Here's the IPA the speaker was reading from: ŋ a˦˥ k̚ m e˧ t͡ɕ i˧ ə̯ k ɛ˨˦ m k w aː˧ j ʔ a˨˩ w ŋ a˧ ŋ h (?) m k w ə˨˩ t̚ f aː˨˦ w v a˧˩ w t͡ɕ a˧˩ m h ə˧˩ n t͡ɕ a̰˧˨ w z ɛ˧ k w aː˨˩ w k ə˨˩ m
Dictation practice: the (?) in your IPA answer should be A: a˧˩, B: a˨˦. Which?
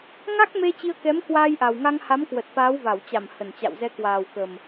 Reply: B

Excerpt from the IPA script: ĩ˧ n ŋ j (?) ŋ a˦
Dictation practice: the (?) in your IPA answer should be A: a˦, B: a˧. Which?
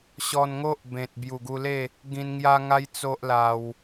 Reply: A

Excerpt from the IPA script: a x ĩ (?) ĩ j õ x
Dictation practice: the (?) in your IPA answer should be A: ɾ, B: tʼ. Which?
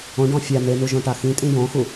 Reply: B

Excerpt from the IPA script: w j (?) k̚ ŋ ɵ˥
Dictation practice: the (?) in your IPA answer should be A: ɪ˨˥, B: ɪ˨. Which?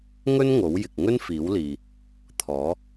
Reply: B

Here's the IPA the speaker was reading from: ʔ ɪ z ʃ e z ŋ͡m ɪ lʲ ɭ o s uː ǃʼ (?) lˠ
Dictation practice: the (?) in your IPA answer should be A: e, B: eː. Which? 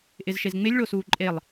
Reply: A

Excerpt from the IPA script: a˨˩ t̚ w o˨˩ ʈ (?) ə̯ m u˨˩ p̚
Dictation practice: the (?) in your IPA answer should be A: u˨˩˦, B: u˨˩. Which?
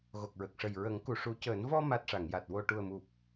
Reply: B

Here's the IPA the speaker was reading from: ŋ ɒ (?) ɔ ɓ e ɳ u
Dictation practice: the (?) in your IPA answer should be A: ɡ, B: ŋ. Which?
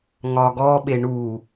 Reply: A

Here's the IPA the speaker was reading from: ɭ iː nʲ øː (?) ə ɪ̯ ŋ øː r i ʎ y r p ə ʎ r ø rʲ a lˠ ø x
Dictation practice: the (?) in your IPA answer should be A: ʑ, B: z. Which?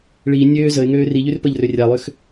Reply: B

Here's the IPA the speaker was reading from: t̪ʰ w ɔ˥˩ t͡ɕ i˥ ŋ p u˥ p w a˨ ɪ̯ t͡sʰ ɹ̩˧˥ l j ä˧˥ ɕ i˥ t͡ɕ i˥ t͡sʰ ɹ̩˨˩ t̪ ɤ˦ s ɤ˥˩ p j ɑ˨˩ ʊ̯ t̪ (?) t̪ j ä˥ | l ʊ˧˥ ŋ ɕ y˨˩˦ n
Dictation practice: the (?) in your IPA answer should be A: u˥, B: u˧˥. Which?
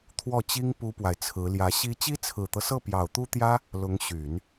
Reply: A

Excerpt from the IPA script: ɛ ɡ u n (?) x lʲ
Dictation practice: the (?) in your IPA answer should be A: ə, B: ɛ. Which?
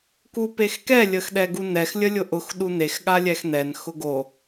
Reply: B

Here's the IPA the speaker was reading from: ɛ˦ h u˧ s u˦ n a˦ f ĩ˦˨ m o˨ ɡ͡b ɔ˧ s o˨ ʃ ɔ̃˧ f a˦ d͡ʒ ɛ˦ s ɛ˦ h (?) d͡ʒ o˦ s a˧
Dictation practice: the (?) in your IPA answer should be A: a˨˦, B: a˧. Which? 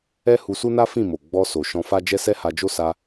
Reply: B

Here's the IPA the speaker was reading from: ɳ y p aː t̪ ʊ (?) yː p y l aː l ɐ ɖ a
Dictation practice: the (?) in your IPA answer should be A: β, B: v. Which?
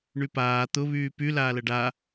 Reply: A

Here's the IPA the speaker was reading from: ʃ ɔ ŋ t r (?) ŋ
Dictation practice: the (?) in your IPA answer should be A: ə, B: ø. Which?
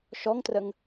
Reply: A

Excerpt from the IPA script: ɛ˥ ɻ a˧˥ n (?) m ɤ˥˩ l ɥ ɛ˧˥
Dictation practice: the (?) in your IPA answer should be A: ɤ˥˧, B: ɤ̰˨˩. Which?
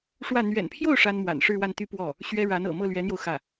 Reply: B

